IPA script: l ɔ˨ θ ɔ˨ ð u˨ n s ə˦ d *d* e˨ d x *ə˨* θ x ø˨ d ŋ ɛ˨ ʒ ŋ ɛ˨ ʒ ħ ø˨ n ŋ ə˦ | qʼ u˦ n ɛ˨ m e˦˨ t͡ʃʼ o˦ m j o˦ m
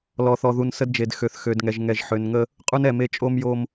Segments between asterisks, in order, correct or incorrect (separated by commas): incorrect, incorrect